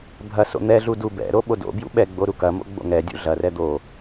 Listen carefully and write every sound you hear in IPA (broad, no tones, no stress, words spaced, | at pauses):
bʱɐ so̰n̪ɛɮu dubɛ̰ɾo ɓodo̰bjṵ ɓɛɡ͡bo ɾukɐmo̰ ɡ͡bo̰ŋɛdʲṵ ɮɐrɛ d̪o